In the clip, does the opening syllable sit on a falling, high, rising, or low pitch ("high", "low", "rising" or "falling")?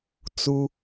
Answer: high